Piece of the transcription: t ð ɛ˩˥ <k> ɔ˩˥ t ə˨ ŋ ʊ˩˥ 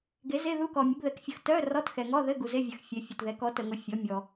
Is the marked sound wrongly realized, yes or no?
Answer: no